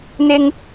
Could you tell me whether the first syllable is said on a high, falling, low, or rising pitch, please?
high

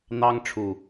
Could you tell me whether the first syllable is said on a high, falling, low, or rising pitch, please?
high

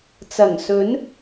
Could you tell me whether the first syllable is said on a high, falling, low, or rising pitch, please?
low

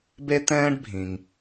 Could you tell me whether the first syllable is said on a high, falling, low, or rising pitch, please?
high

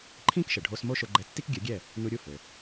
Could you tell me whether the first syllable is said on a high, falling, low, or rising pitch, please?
high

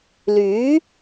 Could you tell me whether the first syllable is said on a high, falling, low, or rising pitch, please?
rising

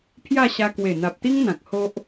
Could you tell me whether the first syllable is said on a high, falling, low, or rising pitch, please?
falling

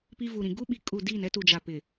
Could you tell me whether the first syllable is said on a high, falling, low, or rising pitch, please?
high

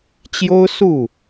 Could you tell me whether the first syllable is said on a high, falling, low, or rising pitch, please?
high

